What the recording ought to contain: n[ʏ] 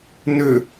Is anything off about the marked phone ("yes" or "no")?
no